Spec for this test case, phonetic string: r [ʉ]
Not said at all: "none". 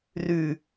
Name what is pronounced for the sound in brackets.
ʉ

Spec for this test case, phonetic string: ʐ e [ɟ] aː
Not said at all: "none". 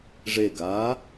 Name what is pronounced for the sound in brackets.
ɡ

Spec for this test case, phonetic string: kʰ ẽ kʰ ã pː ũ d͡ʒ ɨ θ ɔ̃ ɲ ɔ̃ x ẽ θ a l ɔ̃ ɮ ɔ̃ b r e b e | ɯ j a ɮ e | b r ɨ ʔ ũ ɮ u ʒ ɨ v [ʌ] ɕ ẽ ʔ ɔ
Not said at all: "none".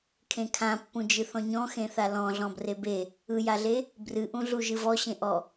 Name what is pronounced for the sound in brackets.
ɔ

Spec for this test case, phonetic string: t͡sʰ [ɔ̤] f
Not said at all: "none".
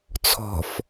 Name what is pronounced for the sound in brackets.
ɔ̤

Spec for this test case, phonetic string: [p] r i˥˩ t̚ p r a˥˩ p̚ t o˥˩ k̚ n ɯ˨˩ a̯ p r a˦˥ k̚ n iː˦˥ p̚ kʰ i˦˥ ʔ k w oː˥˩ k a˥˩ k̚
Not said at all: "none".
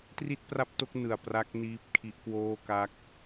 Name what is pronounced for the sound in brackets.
t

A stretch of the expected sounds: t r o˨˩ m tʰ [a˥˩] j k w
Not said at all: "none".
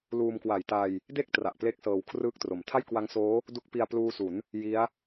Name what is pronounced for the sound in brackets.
a˥˩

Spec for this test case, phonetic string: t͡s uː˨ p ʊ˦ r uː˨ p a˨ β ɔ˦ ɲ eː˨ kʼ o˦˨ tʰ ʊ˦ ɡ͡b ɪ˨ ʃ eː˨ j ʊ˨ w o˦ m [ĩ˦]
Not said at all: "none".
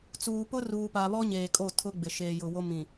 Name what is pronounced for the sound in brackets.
ĩ˨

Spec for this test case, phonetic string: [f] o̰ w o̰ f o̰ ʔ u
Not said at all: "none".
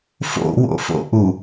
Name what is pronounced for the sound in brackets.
f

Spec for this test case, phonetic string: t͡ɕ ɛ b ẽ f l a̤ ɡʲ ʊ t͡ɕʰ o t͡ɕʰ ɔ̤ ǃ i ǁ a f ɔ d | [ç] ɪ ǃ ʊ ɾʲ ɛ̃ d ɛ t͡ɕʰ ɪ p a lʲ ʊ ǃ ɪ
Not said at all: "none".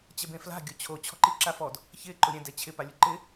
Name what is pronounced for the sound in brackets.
ç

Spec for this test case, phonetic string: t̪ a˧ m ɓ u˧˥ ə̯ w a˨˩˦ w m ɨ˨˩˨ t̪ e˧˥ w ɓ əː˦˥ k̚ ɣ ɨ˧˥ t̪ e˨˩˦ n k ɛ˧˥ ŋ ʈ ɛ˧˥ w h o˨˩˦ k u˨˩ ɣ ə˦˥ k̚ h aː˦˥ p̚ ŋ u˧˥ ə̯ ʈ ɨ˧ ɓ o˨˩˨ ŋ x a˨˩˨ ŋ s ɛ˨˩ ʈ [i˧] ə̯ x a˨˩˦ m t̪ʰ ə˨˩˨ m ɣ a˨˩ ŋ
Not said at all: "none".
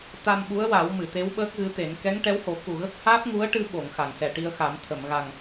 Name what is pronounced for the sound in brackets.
i˧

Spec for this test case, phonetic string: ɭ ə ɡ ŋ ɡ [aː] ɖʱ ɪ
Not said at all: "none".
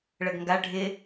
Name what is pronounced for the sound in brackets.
a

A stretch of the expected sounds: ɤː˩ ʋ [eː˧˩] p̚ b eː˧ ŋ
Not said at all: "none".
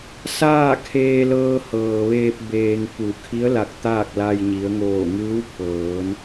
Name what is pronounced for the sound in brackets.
eː˧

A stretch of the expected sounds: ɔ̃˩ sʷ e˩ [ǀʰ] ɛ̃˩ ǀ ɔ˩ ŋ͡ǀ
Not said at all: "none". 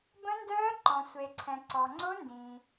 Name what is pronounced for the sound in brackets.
ǀʰ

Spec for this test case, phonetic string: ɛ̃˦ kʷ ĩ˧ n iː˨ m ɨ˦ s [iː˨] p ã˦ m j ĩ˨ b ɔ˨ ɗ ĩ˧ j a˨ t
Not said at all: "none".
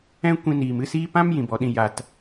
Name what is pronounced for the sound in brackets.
iː˦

